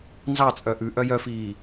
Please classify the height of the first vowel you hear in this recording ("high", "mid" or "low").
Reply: low